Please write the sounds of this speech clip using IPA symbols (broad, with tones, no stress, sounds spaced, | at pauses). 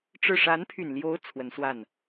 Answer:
ʈ͡ʂ ɻ̩˥˩ ʂ a˧˥ n pʰ y˨˩ n l j o˧˥ ʊ̯ t͡sʰ w ə˧˥ n s w a˥˩ n